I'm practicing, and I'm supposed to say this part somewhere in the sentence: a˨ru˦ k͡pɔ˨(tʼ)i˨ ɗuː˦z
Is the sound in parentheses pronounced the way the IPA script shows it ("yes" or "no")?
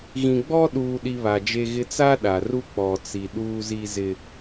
no